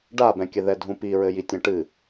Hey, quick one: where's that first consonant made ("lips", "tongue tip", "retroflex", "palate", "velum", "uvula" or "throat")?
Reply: retroflex